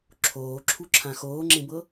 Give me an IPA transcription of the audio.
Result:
ǁʰoːǁʰuǁʰã xoːŋ͡ǁẽbɤ

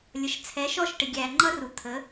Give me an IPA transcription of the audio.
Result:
lʲʌ˨ʃt͡sʰɛ˨˦ʃɔ˦˨ʃʈɪ˨ ɡʲæ˨ŋ͡ǃʌ˦ru˨ t̪ʰə˨˦

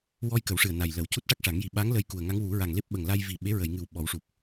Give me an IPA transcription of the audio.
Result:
wɔ˧j kə˨˩˦wʂɨ˨˩ə̯ na˨˩jlə˨˩˦w cu˦˥t̚ ʈa˦˥k̚ʂa˨˩˦ŋji˨˩˦ ɓa˧˥ŋ lə˧jku˨˩ə̯ŋa˧˥ŋ wu˨˩˦ ɹa˨˩ŋle˦˥p̚ ɓə˨˩ŋla˧j vi˨˩ ɓe˧˥ɹə˨˩˨jŋɨ˨˩w ɓɔ˨˩˦wʂu˨˩p̚

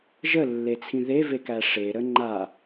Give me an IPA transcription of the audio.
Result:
ʒəlːet͡sʰĩ ðevekæ ʂeɾə ŋ͡ǃa

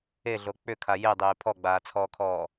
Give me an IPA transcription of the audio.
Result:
eɮo k͡pʏkʰa jedˤeː pʰɔɡ͡baːt͡sʰɔːkʰɔː

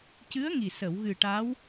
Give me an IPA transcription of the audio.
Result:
cɨ˧˥ə̯ŋi˨˩ sə˨˩˨wɣɨ˨˩ ʈaː˧˥w

